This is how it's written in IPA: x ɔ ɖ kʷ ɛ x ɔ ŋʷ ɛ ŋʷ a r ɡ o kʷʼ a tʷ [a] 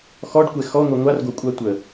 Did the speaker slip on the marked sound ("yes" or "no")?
yes